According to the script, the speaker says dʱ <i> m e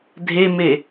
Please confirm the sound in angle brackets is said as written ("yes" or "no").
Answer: no